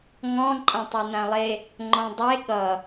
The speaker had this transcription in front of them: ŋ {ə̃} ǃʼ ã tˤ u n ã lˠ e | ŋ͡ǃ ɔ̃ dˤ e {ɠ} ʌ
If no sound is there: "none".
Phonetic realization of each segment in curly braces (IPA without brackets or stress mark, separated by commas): ɔ̃, ɠ